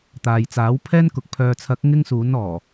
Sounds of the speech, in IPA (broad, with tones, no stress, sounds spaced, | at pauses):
t̪ aː˨ j t͡s aː˨˥ w pʰ ɛː˥ n k ʊ˨˥ k̚ pʰ œː˨ t͡sʰ ɐ˨˥ k̚ ŋ ɪ˥ ŋ s uː˨˥ n ɔː˨˩